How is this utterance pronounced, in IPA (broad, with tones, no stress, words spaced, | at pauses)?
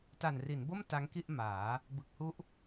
ta˨˩nri˩˦nbo˥˩m ta˦˥ŋki˥˩ʔ maː˩˦ | bɯ˨˩k̚hu˦˥ʔ